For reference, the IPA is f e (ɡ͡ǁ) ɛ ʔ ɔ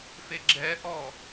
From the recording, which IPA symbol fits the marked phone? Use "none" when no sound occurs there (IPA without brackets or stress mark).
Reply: ɡ͡ǁ